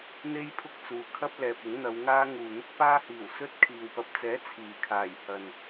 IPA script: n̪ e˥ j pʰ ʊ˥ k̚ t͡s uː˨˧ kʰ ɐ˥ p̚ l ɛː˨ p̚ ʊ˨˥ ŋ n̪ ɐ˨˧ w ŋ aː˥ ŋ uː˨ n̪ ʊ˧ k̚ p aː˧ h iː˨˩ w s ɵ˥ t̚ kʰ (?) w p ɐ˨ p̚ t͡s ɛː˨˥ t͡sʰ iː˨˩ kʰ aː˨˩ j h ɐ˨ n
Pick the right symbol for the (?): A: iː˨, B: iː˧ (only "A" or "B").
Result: A